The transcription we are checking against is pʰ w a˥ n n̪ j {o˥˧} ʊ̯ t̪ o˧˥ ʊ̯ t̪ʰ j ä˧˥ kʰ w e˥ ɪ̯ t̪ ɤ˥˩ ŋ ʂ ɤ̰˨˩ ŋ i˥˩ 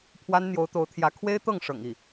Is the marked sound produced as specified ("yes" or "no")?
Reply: no